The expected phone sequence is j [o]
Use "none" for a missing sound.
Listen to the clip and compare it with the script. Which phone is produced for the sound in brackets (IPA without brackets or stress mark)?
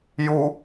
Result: u